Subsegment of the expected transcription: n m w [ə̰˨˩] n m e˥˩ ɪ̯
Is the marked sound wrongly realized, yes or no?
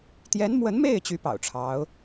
yes